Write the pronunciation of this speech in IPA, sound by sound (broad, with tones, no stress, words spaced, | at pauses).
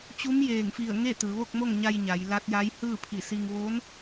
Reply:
t͡ɕu˧˥mjeː˧˩ŋfi˧˩ə̯ ŋe˥˨t̪ɯː˩˧ʋo˥˨k̚mo˥˨ŋ ɲa˧j ɲa˩˧jla˧˥t̚ja˧˥j hɯː˥˨pʰi˧˩si˧ŋ ʋo˧˥n